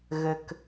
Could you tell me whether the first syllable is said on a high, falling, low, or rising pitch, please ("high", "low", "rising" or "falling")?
low